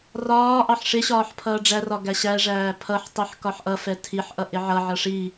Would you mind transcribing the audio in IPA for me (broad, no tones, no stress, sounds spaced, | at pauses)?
r ɒː ʔ ɑ ħ ʂ ɪ ɕ ɒː ħ pʰ ʌː ɖ͡ʐ æ r ɒ ɡ æ ɕ æ ʐ æː pʰ ʌ ħ tˤ i ħ k ɒ ħ ʔ ʌ f ɛ tʰ i ħ ʔ ʌ ʔ ɪ ʕ ʌ ʕ ʌ ʂ i